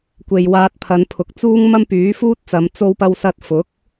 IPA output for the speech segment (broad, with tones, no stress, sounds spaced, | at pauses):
kʷ e˨ j w aː˧ t̚ pʰ ɐ˨˧ n pʰ ʊ˨ k̚ t͡s uː˥ ŋ m ɐ˥ m p yː˨˥ f uː˥ t̚ t͡s ɐ˨˧ m t͡s o˥ w p ɐ˥ w s ɐ˥ t̚ f ʊ˨˥ k̚